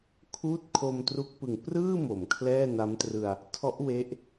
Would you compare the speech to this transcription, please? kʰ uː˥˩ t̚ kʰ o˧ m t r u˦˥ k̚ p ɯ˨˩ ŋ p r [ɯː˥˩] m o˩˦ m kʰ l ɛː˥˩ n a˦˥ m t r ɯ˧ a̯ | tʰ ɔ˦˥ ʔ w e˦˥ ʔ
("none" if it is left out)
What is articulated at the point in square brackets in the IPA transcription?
ɯː˥˩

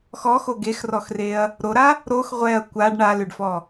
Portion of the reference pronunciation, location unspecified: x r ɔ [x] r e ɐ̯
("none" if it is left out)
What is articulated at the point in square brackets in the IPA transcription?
x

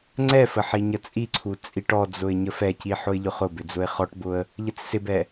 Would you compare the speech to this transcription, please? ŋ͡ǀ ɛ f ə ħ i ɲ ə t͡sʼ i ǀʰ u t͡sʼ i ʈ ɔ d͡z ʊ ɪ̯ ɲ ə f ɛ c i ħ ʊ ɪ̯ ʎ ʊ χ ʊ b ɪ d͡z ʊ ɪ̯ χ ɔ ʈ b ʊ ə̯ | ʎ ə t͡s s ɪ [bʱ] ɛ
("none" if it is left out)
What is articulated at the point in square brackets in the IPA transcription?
b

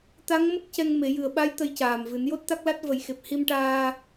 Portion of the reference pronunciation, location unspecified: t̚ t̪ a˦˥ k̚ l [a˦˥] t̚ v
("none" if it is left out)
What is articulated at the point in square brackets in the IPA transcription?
a˦˥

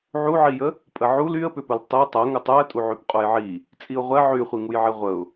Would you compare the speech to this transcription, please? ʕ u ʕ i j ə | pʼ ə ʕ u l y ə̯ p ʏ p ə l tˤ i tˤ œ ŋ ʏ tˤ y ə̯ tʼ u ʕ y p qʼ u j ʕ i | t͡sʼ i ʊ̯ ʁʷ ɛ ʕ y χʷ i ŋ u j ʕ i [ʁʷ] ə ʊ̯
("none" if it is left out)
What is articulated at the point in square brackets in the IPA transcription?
ʁʷ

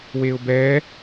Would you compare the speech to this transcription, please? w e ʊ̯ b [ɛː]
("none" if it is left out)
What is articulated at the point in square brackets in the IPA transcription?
ɛː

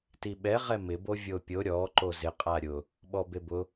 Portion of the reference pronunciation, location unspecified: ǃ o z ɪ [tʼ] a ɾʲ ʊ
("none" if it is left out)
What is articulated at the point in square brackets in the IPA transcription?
qʼ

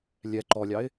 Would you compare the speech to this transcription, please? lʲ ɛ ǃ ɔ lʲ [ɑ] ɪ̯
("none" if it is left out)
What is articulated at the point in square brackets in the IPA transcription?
ɑ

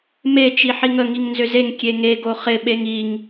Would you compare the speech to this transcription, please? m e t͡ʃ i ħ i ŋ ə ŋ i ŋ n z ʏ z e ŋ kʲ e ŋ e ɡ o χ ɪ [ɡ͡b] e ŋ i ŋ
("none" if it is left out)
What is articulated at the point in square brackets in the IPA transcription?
ɓ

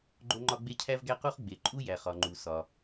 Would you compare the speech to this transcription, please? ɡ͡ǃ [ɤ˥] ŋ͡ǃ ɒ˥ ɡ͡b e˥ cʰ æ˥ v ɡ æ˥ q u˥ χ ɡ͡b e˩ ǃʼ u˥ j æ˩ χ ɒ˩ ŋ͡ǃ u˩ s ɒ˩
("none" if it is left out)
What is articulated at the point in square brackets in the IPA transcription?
o˥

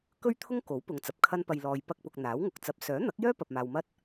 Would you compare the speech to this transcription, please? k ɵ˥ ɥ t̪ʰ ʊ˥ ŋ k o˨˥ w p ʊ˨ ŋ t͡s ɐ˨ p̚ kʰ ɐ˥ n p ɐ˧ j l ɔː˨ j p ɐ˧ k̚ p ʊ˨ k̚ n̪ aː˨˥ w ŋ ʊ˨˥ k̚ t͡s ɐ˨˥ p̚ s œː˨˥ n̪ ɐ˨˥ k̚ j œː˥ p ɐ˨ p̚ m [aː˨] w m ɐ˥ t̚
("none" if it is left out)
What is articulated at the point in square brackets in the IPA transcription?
aː˨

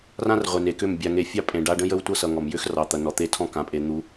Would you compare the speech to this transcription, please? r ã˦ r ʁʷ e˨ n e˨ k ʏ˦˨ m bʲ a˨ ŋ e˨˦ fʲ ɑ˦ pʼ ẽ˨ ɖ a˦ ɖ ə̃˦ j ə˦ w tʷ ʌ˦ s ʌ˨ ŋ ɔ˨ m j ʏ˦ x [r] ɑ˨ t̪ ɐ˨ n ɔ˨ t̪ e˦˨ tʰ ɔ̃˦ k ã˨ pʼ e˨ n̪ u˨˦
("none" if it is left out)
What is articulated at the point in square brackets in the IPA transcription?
r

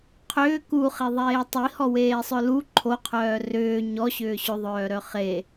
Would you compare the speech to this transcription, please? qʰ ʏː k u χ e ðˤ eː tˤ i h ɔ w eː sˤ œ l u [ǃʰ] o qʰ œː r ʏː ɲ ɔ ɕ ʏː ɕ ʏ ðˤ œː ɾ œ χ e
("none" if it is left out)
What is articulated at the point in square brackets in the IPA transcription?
ǃʰ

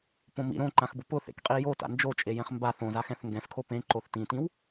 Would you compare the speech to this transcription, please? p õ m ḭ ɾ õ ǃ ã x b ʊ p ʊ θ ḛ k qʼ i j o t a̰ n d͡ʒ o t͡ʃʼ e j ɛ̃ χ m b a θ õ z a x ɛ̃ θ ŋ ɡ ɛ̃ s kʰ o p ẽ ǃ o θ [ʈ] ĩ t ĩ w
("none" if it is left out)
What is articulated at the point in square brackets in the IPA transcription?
t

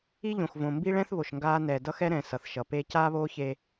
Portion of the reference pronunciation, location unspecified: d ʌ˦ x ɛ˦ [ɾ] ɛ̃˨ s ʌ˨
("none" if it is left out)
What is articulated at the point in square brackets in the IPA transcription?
ɾ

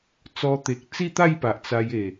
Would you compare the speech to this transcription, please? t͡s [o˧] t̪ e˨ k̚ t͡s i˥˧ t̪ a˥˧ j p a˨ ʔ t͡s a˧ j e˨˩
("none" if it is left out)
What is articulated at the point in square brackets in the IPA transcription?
ɔ˧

